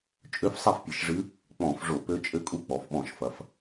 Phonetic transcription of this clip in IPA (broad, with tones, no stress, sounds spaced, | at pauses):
t͡ʃʼ ø˧˥ f sˤ e˥˩ f pʲ ɨ˧˩˧ ʃ ʐ ɨ˧˥ | k͡p ɔ̃˧˩˧ f ʐ o˧˩˧ p ø˧˥ t͡ʃʼ ɘ˧˥ kʼ u˧˥ k͡p ɔ˩˧ f ɓ ɔ̃˧˩˧ ʃ f ɐ˩˧ f